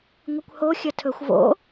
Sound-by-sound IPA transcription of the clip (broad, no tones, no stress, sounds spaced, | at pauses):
ŋʷ ɨ kʷ h o xʲ ɐ tʰ ɵ xʷ v o̰